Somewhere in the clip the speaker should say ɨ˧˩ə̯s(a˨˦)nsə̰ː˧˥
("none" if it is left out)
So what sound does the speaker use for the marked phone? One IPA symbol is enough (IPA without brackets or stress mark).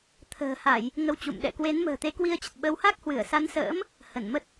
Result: a˨˦